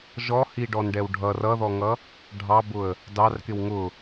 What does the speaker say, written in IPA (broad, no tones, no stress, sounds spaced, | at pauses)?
ʒ ɔ h i ɖ ɔ n ɖ ɛ w ɖʱ ʌ r ʌ ð ɔ ŋ ʌ | ɖʱ ɑ b ʊ ə̯ | d ɑ r k ɪ w ŋ ʊ